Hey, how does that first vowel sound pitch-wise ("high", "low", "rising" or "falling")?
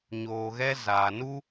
low